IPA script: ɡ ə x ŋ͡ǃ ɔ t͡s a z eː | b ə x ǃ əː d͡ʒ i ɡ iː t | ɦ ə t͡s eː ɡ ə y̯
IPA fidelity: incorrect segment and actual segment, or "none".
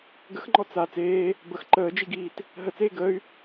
z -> t͡s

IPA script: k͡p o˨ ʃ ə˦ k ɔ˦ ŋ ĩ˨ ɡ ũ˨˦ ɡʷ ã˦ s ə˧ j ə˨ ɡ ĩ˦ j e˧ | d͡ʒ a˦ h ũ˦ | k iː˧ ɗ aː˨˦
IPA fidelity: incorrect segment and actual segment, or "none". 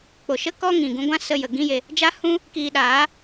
none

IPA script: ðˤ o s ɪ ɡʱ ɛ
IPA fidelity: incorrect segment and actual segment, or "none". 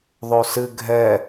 ɪ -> ɨ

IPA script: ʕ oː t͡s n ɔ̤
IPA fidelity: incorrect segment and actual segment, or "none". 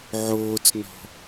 none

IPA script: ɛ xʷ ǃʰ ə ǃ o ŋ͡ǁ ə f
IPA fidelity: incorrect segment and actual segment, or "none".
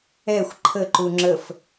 o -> u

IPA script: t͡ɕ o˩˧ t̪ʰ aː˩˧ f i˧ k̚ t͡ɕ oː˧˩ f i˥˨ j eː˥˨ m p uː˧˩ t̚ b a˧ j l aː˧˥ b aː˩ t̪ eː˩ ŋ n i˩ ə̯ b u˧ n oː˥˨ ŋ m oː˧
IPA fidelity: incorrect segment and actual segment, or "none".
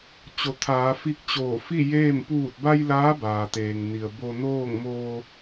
u˧ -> o˧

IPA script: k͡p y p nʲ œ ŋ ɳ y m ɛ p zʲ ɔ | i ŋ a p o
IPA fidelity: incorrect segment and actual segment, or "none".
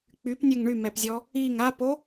none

